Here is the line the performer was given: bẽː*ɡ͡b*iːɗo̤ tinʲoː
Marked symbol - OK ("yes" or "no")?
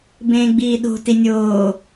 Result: yes